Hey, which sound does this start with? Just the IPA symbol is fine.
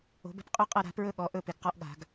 o̤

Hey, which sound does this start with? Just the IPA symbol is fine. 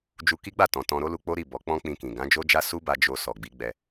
d͡ʒ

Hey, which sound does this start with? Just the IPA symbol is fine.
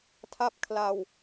tʰ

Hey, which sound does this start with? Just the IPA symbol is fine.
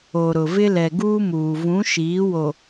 o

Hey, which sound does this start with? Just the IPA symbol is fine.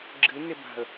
ɡ͡ǁ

